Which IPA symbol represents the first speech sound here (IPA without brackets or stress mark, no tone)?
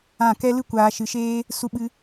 ã